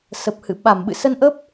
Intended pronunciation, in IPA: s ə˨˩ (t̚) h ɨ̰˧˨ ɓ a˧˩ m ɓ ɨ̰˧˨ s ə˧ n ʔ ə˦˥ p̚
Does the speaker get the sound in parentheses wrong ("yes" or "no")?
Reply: yes